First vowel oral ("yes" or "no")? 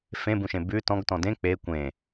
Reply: no